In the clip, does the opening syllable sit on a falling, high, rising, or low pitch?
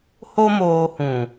high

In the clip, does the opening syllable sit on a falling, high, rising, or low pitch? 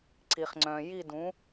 low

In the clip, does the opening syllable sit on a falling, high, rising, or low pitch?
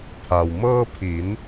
low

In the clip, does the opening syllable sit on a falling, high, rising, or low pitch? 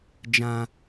low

